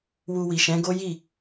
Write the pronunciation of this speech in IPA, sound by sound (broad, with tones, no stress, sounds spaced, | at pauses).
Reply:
w u˧ w i˨ ʃ ɛ̃˨˦ ɡ o˦ j i˦˨